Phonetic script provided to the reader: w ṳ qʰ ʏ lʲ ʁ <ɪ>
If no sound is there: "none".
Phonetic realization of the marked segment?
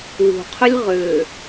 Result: ʏ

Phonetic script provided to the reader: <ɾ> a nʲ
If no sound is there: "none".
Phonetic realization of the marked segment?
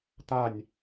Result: t̪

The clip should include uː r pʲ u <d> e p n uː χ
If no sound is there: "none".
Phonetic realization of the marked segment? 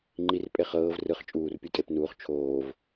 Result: tʼ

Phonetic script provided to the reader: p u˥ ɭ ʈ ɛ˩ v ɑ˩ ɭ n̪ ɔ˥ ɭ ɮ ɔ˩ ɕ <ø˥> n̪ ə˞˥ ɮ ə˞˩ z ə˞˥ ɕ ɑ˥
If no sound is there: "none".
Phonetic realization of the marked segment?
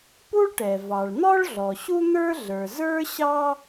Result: u˥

